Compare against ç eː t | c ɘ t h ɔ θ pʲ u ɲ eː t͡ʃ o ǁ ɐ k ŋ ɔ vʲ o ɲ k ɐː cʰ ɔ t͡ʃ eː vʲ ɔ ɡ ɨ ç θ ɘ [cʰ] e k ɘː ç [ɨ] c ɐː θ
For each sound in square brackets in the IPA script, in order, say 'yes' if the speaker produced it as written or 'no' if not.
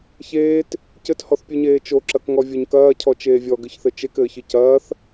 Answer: no, yes

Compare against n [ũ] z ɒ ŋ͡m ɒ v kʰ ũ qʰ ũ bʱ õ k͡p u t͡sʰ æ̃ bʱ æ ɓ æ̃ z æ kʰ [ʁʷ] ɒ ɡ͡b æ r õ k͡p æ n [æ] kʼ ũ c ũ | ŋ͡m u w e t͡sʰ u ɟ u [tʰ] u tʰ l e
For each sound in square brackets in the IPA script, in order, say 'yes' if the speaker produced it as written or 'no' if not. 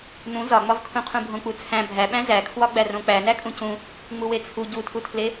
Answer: yes, no, yes, yes

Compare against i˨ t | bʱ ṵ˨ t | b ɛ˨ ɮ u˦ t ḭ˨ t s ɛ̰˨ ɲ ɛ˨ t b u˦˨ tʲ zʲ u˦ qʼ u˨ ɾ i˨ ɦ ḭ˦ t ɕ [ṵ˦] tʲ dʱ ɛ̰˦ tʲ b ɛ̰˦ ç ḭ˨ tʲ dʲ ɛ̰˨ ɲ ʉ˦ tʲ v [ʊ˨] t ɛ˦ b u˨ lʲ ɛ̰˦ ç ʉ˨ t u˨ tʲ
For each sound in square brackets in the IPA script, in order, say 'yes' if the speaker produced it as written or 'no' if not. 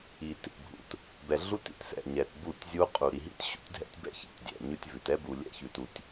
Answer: yes, no

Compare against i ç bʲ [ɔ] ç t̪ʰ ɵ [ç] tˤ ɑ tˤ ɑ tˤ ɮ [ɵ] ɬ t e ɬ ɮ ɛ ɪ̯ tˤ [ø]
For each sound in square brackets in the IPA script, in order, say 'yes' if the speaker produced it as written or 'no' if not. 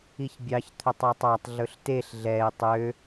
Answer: no, no, yes, yes

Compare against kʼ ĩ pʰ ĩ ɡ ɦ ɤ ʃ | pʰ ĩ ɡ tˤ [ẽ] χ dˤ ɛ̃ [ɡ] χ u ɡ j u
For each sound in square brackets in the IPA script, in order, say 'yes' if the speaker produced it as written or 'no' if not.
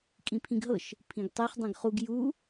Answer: no, yes

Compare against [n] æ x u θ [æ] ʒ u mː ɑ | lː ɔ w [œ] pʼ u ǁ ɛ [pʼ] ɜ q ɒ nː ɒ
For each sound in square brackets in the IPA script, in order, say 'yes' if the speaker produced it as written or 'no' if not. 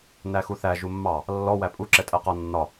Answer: yes, yes, no, no

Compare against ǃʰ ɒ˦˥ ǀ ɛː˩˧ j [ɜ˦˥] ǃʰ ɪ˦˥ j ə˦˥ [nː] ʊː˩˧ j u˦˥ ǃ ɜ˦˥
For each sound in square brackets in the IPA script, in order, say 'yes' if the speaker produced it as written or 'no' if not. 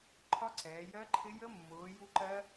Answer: yes, no

